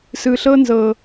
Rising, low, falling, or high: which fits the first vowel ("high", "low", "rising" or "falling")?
low